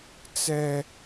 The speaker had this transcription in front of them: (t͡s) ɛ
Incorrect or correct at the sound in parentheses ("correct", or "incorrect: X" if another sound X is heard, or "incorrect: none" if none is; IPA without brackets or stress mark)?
correct